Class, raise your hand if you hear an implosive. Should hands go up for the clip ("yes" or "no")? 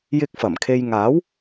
no